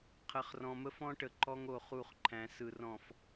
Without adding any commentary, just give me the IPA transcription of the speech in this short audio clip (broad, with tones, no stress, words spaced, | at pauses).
qʰə˨χrɔ̃˨mə˦ fɔ̃˦ʈə˨ ǃɔ˦ŋo˨ χu˦˨χǃʰæ̃˨˦ sɯ˨ rɔ̃˨f